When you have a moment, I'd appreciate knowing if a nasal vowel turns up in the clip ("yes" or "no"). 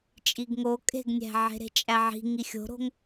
no